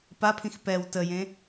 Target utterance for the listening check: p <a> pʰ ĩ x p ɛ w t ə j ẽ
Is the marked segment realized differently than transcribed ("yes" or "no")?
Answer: no